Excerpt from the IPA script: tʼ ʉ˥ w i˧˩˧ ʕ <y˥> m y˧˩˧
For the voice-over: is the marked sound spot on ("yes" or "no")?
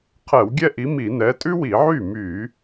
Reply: no